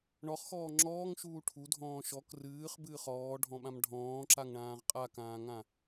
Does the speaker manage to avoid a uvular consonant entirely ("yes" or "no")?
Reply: no